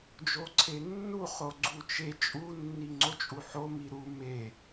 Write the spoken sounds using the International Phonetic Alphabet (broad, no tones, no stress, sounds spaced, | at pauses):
d͡ʒ o ǀʰ e nː u χ o ɡ͡ǀ u t͡ʃ e t͡ʃʼ u nː i ŋ͡ǀ o t͡ʃʼ u ħ o m i ɾ u m e